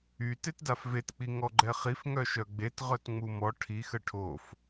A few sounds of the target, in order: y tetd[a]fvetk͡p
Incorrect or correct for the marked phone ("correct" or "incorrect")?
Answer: correct